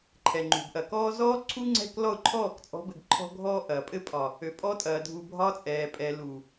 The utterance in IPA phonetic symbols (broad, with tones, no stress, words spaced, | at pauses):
ǃʰɛ˨ŋ͡ǃṳ˨bʔɐ˨kɔː˦ zɔː˦ ǀʰu˦ŋ͡ǀɛ̤˦˨k lɔ˦˨ʊ̯ǃʰɔː˦˨kt͡sʼɔ̤˨˦bɘ˨ɡ ǃʰɔ̤˦ɡʱɔː˦ ʔɐː˨ pʼɘ˦pʼɒ˨ | ø˨pʼɔ˦tʼɐː˨dʱu˨ bʱɒ˦t͡sʼɛː˨pʼɛ˨ lu˨